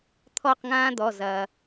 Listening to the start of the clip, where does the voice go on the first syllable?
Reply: falling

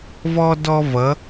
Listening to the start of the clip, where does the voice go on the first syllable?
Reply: high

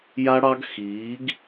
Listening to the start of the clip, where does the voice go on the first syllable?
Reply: high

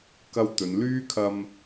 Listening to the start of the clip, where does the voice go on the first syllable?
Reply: high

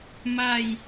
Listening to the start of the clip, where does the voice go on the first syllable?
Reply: falling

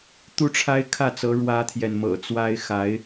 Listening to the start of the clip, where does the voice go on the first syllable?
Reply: high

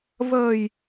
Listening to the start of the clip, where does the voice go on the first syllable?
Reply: low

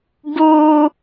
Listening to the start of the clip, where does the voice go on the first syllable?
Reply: high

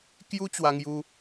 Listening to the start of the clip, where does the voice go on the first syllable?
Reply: high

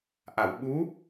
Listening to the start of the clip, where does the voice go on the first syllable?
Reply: low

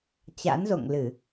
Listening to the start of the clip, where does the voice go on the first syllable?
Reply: rising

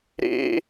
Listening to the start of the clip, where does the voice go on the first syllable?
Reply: high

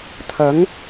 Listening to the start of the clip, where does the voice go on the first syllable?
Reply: rising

